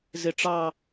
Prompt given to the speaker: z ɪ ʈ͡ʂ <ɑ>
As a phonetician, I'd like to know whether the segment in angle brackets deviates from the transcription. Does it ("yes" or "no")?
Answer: no